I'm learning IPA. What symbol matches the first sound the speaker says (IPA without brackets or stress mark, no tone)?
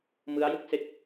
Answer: m